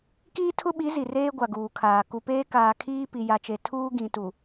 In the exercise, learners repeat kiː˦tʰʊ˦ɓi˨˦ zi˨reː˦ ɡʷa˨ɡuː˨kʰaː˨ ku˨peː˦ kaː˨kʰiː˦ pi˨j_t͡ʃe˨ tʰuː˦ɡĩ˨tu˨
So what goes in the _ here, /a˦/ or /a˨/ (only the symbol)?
a˨